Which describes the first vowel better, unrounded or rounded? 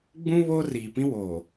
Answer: rounded